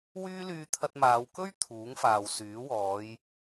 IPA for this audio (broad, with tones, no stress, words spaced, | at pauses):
wyː˥ lyː˧t̪ʰɐ˧t̚maː˨˧w kɵ˥ɥ t̪ʰuː˨˥ŋfaː˨wsyː˨˥ wɔː˨˧j